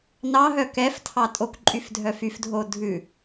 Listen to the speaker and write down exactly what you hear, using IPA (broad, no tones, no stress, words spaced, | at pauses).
nɑɦœ kɛftʰɑ tʼokǃʼyfdʱœ fyfdʱo dʱʉ